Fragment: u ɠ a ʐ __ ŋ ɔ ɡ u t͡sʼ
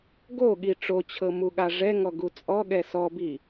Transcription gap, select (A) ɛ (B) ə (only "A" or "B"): A